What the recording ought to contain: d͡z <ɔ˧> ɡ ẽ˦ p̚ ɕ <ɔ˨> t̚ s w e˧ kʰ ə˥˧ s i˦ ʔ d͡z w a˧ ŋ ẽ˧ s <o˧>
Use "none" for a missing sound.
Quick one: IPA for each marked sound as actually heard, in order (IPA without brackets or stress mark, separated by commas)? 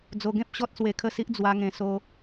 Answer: o˧, ɔ˦, o˧